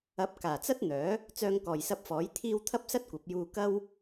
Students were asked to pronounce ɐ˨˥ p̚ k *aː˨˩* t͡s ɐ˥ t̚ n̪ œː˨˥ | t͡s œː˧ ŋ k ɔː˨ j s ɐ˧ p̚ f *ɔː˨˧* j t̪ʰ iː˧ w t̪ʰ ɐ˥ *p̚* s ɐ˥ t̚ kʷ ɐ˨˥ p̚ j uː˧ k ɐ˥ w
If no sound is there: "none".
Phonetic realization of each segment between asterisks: aː˨˩, ɔː˨˥, p̚

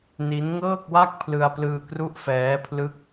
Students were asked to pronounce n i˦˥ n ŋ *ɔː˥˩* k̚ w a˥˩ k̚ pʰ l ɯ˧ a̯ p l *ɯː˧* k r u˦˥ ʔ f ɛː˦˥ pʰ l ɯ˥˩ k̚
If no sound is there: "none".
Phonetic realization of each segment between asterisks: ɤː˥˩, ɯː˧

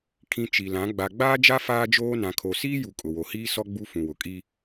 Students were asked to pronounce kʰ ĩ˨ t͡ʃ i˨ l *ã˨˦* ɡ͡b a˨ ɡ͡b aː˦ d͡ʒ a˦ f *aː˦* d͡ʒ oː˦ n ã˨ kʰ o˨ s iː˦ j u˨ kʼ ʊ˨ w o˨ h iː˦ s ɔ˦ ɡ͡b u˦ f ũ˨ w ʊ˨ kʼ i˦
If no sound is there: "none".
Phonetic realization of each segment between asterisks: ã˨˦, aː˦

